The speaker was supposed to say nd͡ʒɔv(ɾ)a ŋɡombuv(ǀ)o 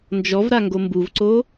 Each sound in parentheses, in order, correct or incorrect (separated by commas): correct, correct